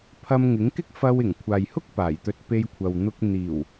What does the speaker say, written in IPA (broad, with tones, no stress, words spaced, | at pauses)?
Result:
pʰɐ˧mŋɪ˨˥ŋkɪ˥k̚ fɐ˧wɪ˨˩ŋ kʷʰaː˨jhʊ˥k̚ paː˨˩jt̪ɵ˧t̚ pe˧jkʷʰɐ˨w n̪ʊ˧k̚ n̪iː˨˩w